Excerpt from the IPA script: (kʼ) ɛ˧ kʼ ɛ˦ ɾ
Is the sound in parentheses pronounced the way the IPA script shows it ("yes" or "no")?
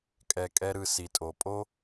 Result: yes